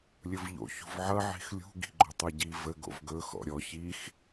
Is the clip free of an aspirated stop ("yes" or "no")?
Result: yes